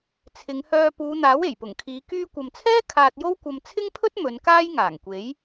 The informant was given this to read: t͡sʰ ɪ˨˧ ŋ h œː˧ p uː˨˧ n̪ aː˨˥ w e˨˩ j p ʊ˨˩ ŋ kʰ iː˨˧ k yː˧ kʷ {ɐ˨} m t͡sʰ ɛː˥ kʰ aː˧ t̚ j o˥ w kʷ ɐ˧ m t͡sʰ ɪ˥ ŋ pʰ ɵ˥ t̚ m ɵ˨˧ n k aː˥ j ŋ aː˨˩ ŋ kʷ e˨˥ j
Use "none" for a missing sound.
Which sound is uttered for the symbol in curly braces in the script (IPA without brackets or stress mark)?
ɐ˨